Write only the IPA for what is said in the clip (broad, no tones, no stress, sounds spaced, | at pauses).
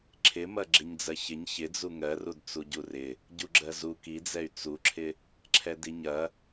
ǁʰ ɪ m ɐ ɡ͡ǁ ɪ ɲ d͡z ɜ ç ɪ ɲ ç ɪ d͡z u ŋ ɜ r u d t͡s u ɟ u r ɪ | ɟ u ɡ͡ǁ ɜ z u k i d͡z ɛ y̯ t͡s u ǁʰ ɪ | ǁʰ ɛ d i ɲ ɐ